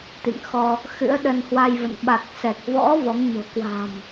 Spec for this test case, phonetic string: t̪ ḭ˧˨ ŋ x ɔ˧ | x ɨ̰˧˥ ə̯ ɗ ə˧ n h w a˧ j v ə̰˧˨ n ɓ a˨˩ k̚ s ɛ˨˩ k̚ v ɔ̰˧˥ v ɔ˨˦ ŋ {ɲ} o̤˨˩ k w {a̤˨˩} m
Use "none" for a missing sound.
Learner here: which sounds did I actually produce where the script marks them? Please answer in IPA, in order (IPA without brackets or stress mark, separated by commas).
ɲ, a̤˨˩